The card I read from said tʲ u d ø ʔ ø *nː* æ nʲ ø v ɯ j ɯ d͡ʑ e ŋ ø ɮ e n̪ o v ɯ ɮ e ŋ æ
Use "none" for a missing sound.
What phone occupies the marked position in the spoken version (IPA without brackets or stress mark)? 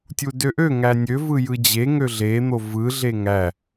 ŋ